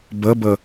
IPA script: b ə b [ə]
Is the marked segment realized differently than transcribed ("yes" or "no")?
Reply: no